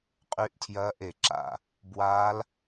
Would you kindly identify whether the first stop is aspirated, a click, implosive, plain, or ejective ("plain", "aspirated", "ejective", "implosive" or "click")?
ejective